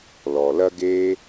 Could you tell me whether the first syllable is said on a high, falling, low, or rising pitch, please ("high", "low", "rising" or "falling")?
low